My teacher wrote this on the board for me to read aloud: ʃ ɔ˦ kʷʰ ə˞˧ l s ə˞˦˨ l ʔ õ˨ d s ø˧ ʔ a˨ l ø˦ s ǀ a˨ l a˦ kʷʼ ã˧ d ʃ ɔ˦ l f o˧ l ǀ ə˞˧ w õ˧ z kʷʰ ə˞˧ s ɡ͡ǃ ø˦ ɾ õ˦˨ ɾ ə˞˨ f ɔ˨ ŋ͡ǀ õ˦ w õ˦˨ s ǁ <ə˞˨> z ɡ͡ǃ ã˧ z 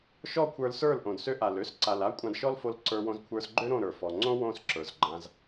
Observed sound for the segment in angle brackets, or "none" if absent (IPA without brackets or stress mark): ə˞˨